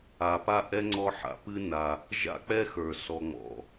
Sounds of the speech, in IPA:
a˨ p a˥ ʔ ɛ˥ ŋ͡ǀ ɔ˦ ħ a̰˨ p ɨ˦ n a˨ | ʒ a̰˥ k͡p ɛ˥ x ə˞˩ s ɔ˨ ŋ͡m ɔ̰˨

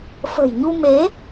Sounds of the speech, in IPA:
f ə̤˨˩ j ɲ u˧ m e˨˦

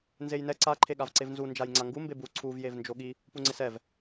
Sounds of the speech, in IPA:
n z e j n ɛ ǀ a ǃʰ e ɠ a v ǀ e v n z u n d͡ʒ a j ŋ͡ǀ a ŋ ɡ u m b e b u ǀʰ u v j e v n d͡ʒ o ɠ i | p u ŋ͡ǀ ɪ s ɛ v

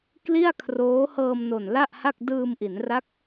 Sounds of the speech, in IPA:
k l i˥˩ a̯ kʰ r oː˦˥ h ɤː˧ m n o˨˩ n l a˥˩ ʔ h a˥˩ k̚ d ɯː˧ m ʔ i˩˦ n r a˦˥ k̚

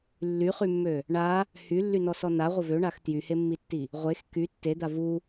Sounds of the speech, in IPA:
lː y χ y mː ø | ɳ a | h y lː y n ɔ s ɔ n a ʁʷ ə v ø ɳ a x t j y h e mː i tː i | ʁʷ e x k y tː e d̪ a v u

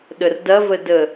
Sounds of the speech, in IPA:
ɗ ə r d ɐ v ə d ə

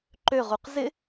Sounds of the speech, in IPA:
ǃ ø ʁ u q z ɪ

